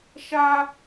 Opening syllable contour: high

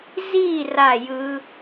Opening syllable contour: falling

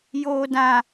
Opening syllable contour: low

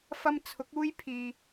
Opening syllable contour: high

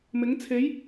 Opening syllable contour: rising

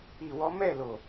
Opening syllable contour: low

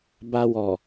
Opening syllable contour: low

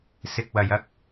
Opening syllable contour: low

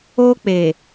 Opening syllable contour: high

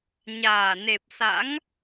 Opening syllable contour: low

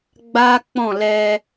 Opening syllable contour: high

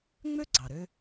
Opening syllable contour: high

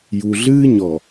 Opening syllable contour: low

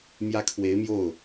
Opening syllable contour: high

